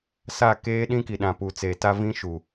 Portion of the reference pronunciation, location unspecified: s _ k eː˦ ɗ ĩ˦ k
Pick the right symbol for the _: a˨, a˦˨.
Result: a˦˨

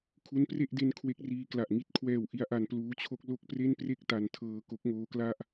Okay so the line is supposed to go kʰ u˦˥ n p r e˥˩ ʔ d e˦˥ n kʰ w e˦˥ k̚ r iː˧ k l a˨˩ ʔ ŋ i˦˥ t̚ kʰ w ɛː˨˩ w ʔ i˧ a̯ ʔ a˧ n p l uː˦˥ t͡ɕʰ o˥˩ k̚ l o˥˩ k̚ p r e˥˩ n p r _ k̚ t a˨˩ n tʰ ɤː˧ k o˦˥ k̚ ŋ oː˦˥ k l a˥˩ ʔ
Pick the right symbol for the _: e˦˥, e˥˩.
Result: e˥˩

